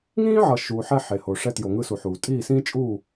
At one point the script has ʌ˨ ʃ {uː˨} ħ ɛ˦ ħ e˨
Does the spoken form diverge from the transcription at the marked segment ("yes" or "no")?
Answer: no